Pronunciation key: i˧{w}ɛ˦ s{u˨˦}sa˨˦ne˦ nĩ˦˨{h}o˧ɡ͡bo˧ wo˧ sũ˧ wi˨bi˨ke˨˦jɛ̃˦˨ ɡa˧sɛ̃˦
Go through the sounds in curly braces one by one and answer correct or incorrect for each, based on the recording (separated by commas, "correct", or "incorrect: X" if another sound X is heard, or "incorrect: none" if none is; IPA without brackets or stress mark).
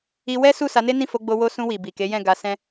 correct, incorrect: u˦˨, incorrect: f